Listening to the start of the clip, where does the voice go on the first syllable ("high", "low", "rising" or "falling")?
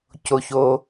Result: low